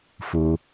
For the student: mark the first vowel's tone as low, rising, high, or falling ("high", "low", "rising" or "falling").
low